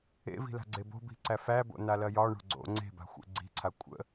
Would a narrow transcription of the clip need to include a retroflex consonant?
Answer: yes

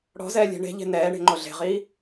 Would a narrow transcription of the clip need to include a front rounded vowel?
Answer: no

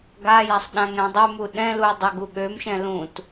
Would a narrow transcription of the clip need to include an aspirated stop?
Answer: no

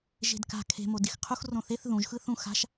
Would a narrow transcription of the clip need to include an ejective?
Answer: no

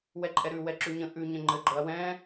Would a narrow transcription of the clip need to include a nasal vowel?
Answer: yes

